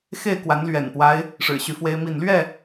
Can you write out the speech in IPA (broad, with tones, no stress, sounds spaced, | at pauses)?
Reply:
x e˥˨ ɪ̯ k w a˨˦ n l ɥ ɛ̰˨˩ n p w a˦ ɪ̯ | ʂ ɻ̩˨˩ ɕ y˨˦ f w e˦ ɪ̯ m i˥˨ n l ɥ ɛ˥˨